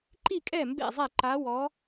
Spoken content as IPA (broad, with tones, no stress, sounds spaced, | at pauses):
ǃ i˥˨ kʼ ɛ˥˨ m b ḛ˥˨ zˤ ɛ˥˨ ǃ a˧˥ w ɔ˧˥